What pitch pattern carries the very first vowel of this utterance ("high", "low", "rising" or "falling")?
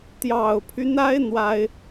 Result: low